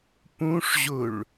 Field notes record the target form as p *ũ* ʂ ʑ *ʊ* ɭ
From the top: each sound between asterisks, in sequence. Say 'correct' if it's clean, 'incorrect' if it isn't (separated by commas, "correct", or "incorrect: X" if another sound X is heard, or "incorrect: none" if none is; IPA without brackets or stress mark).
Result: correct, correct